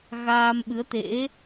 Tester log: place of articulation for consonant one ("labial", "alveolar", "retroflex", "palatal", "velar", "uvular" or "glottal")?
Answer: velar